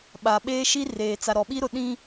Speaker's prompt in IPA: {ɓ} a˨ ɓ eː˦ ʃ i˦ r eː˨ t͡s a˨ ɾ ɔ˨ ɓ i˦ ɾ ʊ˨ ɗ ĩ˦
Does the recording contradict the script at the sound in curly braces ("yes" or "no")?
no